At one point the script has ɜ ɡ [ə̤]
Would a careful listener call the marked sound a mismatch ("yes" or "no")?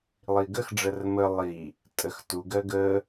yes